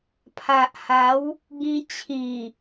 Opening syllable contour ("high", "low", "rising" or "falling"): low